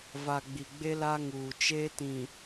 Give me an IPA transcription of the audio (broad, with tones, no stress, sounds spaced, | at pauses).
v a˨ ɡ͡b i˨ ɡ͡b e˦ l a˦ ŋ uː˨ t͡ʃ eː˦ t ĩ˨